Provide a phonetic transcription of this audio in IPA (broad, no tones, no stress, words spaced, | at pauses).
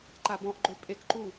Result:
ǃabɔ̃ʔɡ͡ǃø pʼekǃu